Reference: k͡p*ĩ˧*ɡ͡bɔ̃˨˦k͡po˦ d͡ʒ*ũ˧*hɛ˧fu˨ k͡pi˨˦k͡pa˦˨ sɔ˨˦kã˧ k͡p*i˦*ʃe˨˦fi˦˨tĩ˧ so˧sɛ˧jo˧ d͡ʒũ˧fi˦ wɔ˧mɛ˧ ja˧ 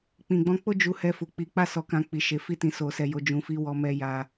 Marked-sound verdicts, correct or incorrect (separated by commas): incorrect, incorrect, incorrect